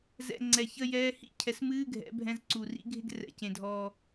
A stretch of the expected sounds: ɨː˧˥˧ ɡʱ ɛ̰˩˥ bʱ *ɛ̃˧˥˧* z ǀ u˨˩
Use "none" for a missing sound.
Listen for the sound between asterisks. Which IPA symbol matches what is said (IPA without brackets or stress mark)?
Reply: ɛ̃˧˥˧